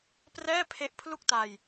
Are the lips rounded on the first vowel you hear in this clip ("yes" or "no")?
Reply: no